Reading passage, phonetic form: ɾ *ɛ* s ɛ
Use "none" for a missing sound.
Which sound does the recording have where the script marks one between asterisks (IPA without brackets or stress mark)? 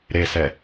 e